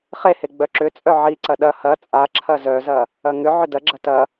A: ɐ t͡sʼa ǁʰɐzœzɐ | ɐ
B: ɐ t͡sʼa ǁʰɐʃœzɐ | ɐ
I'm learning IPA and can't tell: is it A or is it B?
A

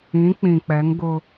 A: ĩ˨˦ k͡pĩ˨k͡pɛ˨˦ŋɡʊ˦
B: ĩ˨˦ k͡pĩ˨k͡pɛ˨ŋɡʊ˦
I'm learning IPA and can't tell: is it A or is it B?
A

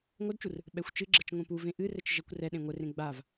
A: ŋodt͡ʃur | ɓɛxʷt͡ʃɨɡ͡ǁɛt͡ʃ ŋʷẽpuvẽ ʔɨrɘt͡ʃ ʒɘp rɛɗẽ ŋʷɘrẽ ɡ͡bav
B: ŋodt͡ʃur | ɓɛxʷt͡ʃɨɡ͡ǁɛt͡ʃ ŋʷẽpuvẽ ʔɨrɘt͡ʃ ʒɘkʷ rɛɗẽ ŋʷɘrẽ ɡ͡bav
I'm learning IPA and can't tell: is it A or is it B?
B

